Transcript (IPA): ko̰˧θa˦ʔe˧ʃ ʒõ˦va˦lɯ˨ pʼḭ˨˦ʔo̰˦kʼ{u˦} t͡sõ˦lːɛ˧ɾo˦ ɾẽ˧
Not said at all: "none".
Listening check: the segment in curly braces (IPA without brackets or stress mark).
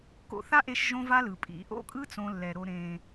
ɯ˦